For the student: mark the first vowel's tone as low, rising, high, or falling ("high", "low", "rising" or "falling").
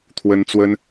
high